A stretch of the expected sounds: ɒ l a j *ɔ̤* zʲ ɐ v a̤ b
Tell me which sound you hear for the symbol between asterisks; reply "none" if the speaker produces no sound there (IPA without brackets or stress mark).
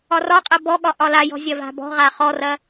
ɔ̤